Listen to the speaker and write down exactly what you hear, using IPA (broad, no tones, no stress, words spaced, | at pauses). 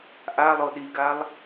ʔalˠo ɗiɡalˠ